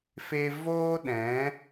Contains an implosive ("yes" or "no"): yes